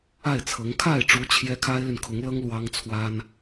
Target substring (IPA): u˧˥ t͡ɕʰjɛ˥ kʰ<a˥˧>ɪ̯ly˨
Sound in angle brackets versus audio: incorrect: a˥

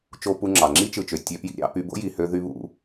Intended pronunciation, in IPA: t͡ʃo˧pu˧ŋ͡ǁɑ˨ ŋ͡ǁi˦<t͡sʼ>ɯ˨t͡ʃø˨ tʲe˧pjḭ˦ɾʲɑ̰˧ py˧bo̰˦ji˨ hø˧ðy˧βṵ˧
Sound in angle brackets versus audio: incorrect: t͡ʃ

